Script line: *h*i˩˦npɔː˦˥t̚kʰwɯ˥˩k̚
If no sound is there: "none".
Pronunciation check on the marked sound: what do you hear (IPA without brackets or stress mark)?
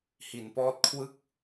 h